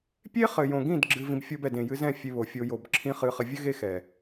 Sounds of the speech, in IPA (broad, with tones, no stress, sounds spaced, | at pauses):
pʲ e˦ χ ɘ˨ j õ˨ ɡ ĩ˦˨ d ɡ͡ǁ ɨ˧ v ĩ˧ b fʲ o˦ b ɛ˨ d ẽ˨ j ɨ˧ z ɛ̃˦˨ fʲ e˧ β o˨ fʲ o˧ j o˨ b ǁʰ ĩ˦ χ ɨ˧ χ ɘ˧ vʲ ɘ˦ ɣ e˦ x ɛ˨